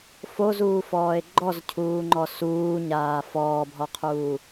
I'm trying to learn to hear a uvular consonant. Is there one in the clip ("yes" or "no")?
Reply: yes